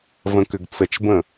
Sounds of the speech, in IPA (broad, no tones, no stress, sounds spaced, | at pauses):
v ə̃ k ʏ ɡ t͡s ə t͡ʃ b ə̃